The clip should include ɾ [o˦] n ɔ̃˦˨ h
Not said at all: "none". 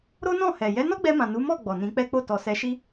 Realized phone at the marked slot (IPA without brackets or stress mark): o˦